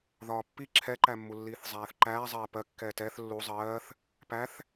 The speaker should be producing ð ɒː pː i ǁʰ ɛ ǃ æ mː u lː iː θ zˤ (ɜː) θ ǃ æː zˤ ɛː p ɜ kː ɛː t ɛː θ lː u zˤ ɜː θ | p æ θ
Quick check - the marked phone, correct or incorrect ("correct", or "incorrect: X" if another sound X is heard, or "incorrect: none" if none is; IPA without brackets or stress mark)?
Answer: incorrect: æː